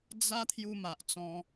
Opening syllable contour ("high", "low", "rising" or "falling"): high